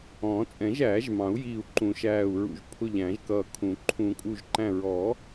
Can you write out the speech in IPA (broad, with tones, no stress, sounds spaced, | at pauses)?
ɔ̃ː˨˩˦ t͡sʼ ɛ̃˨˩˦ ʒ æː˨˩˦ ʒ m ɑ̃˨˩˦ u̯ j iː˧˩ u̯ ǃ ũ˨˩˦ ʃ æː˧˩ u̯ ɹ ṵ˧˩ ʒ pʰ ʊ˧˩ ʎ æ̃˨˩˦ ʒ k ʌː˧˩ kʰ ũ˨˩˦ ǃʰ ũ˨˩˦ kʼ u˧˩ ʒ ǃ æ̃˧˩ ɹ ɔ˨˩˦